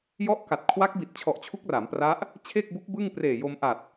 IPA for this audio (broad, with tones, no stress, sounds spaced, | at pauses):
j ɔ˦˥ ʔ k a˨˩ t̚ kʰ w a˦˥ k̚ b i˨˩ t̚ t͡ɕʰ ɔ˨˩ ʔ t͡ɕʰ u˦˥ k̚ r a˩˦ m p r a˦˥ ʔ | t͡ɕʰ e˥˩ k̚ b u˦˥ k̚ b ɯ˥˩ ŋ p r eː˨˩ j o˧ m ʔ a˨˩ t̚